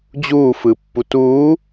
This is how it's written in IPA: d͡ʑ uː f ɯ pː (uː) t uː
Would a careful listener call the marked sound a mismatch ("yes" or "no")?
yes